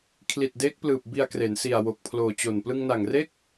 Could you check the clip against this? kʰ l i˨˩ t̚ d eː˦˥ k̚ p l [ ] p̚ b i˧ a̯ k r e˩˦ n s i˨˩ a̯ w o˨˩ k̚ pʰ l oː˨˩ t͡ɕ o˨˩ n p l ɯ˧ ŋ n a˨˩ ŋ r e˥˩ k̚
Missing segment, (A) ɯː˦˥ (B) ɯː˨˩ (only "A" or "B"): B